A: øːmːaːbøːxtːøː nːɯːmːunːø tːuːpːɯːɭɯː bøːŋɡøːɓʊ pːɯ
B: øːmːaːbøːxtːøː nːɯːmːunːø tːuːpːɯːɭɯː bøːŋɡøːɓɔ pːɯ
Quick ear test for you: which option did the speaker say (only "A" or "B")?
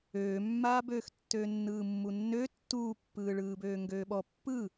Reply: B